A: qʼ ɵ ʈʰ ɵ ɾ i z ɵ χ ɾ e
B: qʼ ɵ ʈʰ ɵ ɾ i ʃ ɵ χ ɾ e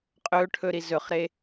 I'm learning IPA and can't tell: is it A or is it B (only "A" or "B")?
A